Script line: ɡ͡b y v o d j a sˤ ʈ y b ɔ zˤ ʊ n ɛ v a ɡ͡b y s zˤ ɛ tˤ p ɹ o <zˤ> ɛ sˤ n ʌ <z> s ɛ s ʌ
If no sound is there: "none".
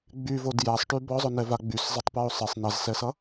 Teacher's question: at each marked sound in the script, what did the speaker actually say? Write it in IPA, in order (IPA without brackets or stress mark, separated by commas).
sˤ, z